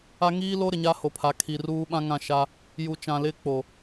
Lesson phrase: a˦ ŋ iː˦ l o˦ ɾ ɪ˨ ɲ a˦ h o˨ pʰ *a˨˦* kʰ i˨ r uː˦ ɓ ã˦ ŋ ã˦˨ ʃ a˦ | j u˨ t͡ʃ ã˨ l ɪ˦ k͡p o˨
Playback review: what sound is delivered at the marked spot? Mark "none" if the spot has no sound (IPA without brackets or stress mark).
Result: a˨˦